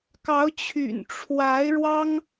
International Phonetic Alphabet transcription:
k ɑ˧˥ ʊ̯ t͡ɕʰ y̰˨˩ n ʈ͡ʂʰ w a˧˥ ɪ̯ ɻ w ɑ˥ ŋ

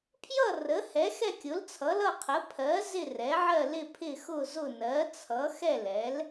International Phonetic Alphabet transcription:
pʰ j ʌ˥˨ r ə˩˥ h ɛ˩˥ x ɛ˥˨ kʲ ʊ˩˥ l t͡sʰ ʌ˩˥ l ʌ˥˨ qʰ ə˩˥ pʰ ɜ˩˥ z ɪ˥˨ r ɛ˩˥ ʕ ɜ˥˨ l ɪ˥˨ pʰ ɪ˥˨ x ʊ˥˨ z ʊ˥˨ n ɜ˩˥ t͡sʰ ʌ˩˥ x ɛ˥˨ l ɛ˩˥ l

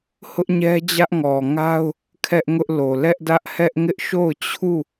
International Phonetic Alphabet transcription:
h ʊ˦ ʔ ɲ ɛ˦ d͡ʑ ä˦ ʔ ŋ ɔ˨ ŋ a˦ ʊ̯ | kʰ ɛ˦ ʔ ŋ ʊ˦ ʔ l o˨ l ɛ˦ ʔ d ä˦ ʔ h ɛ˦ ʔ ŋ ɪ˦ ʔ ʃ o˦˨ ʊ̯ t͡ɕʰ u˦˨

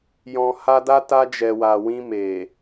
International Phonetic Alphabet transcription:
j ɔ̃˨ h a˧ d a˦ t a˧ d͡ʒ ɛ˨ w a˨ w ĩ˧ m e˨

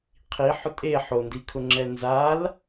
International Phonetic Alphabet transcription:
qʰ i ħ ʊ tʼ e ħ o n d i kʰ ʊ ŋ͡ǁ ɛ n z a l

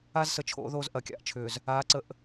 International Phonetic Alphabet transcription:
a˦ z s ə˨ t͡ʃʰ o̰˨˦ ð oː˦ z ʔ ɐ˨˦ kʲ a̰˨ ʔ t͡ʃʰ ʏː˨ z | aː˨˦ ǀ ə˨ ʔ

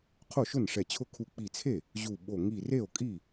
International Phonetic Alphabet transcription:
qʰ o˥˩ ʃ ʊ˥˩ n ʂ ɛ˧˩ t͡ɕʰ ʊ˥˩ kʰ u˧˩ k͡p i˧˩ t͡sʰ e˥˩ | ʑ u˧˩ ɓ o˧˩ ŋ i˧˩ r e˥˩ o̯ kʼ i˥˩

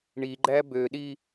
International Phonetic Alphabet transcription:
ɳ i ɡ͡ǃ æ b ø ɗ i

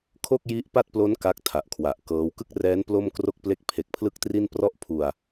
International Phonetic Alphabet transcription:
kʰ o˥˩ k̚ j i˦˥ ʔ p a˥˩ t̚ p l o˦˥ n k a˦˥ k̚ tʰ a˨˩ ʔ kʰ w a˨˩ ʔ k ɤː˦˥ w k ɯ˥˩ k̚ r ɛː˦˥ n p l o˥˩ m k r o˥˩ k̚ p l e˥˩ k̚ pʰ e˨˩ k̚ pʰ l ɯ˥˩ k̚ t r i˥˩ n p r ɔ˥˩ ʔ pʰ u˧ a̯

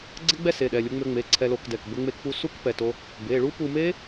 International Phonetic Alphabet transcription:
ɡ͡ǀ ə˦˥ ɡ͡b ɛ˦˥ s e˩˧˩ ɗ ɛ˩˧˩ lʲ u˧ ŋ͡m ø˧ ŋ͡m e˩˧˩ ǀʰ ɛ˧ l o˧ k d ɛ˩˧˩ k b ə˧ ŋ͡m e˧ k p u˧ s u˦˥ k p ɛ˩˧˩ t o˧ | b e˩˧˩ ɭ u˦˥ p u˧ m e˦˥

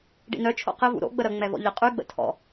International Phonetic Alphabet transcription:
ɖ ḭ n œ t͡ʃʰ o̰ q ɪ v ṵ ɾ o̰ ɡ͡b ə ɾ ə ŋ͡m ɛ v ɔ̰ ʎ ɪ qʼ y ɡ͡b ə̰ tʰ ɔ̰

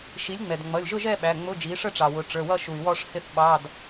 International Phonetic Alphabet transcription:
ʃ i˩˥ lʲ ŋ͡m ɛ˩ d ŋ͡m ʌ˩˧˩ lʲ ʒ ʊ˥˧ ʒ ɛ˥˧ ɓ æ˩˧˩ ŋ͡m ʊ˧˥˧ d͡ʒ i˩˥ ʂ ə˥˧ ʈ͡ʂ ɑ˩ w ʊ˩˧ ʈ͡ʂ ə˞˩˧˩ w ʌ˥˧ ʃ u˩ y̯ w ɔ˥˧ ʂ h ɪ˥˧ θ ɓ ɑ˧˥˧ d

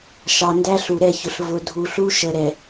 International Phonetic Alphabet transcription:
ʃ ɑ˨ n d æ˦ ɬ u˨ ɾ ɛ˦˨ ç ʊ˨ ɬ v ʊ˨ dʱ u˨ ɬ u˦ ʃ ə˨ ɾ ɛ˨

